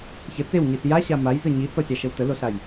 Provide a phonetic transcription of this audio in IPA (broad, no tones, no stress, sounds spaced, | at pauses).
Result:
ç ə t͡s e w ɲ i s j a ɕ a m a j z ə ɲ i t͡s ɔ sʲ ɑ ʃ ə w t ə l o ɬ a j